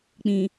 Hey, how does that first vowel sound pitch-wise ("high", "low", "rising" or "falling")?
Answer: low